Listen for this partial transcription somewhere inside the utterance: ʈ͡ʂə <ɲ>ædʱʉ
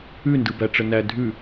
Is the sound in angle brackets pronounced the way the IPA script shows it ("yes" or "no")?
no